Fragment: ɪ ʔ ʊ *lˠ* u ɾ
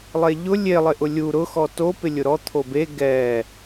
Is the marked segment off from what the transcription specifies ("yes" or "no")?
yes